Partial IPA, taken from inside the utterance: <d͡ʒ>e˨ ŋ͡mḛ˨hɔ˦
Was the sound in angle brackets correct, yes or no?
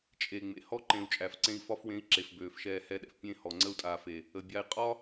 no